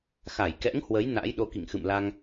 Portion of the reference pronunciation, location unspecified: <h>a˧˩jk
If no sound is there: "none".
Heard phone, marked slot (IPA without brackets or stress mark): x